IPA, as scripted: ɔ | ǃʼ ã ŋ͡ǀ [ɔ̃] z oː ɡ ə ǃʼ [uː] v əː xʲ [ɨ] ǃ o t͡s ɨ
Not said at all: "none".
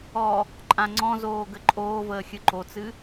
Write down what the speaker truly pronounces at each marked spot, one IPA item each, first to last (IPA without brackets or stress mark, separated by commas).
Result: ɔ̃, oː, ɨ